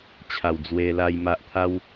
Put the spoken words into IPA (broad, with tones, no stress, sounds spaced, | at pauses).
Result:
t͡ɕʰ a˨˩ w d͡z w e˧ l a˧ j m a˨ ʔ t̪ʰ a˧ w